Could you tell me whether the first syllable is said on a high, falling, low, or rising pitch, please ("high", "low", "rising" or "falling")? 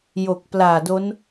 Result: low